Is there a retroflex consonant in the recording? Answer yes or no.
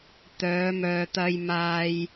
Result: no